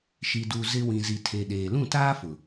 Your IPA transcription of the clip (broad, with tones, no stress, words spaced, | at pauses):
ʃi˨du˨ zɪ˦ wĩ˨zi˨tʰe˨ ɗeː˨ lũ˦˨taː˦fʊ˨